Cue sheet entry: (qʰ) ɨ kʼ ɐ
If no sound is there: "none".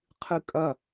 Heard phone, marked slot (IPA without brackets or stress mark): qʰ